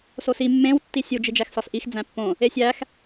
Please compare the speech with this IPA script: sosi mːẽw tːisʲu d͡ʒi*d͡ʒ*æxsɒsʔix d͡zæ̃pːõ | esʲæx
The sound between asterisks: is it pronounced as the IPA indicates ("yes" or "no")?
yes